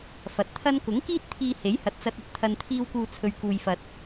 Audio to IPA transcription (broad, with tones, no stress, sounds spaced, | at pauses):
f ɐ˨ t̚ t̪ʰ ɐ˥ n k ʊ˨˥ ŋ k iː˥ t̚ t̪ʰ iː˧ h e˨˥ j h ɐ˨ t̚ t͡s ɐ˧ t̚ ɐ˧ t̚ t̪ʰ ɐ˨ n t̪ʰ iː˧ w k uː˨ t͡sʰ ɵ˨ ɥ k uː˨ j f ɐ˨ t̚